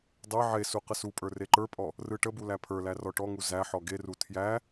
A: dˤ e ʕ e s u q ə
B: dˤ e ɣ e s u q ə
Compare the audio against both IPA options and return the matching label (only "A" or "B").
A